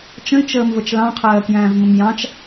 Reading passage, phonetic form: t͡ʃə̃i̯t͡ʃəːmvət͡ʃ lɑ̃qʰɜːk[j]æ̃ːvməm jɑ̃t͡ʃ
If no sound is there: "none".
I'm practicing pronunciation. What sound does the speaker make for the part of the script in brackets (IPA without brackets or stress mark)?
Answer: j